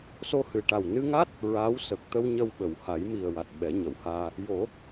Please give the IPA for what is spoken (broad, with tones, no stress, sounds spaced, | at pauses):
s o˧ h ɨ˨˩ ʈ a˨˩ w n ɨ˧ ŋ a˦˥ t̚ | ɹ aː˧˥ w s ə˨˩ k̚ t̪ ə˧ w ɲ ə˧ w ɓ ə˨˩˨ w h a˨˩˦ j m i˨˩ ə̯ w a˨˩ t̚ ɓ ɛ˨˩˦ ɲ ə˨˩˨ w h aː˧ | j o˨˩˦